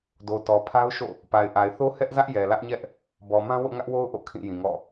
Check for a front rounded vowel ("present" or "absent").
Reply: absent